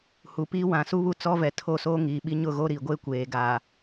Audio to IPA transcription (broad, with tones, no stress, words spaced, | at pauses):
hu˨piː˦ wã˨su˦βu˦˨ t͡sɔ˦vɛ˨ tʰo˦˨soː˦ŋiː˨ɓi˦ ɲʊ˦˨ ɣo˦ɾi˨ ɡʷe˦ kʷeː˨ɡaː˨